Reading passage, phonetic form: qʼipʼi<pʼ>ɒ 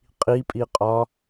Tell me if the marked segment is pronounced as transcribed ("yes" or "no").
no